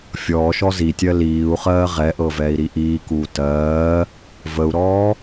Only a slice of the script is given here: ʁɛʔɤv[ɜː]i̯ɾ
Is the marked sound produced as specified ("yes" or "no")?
no